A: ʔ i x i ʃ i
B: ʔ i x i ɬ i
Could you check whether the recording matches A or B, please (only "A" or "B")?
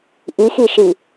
A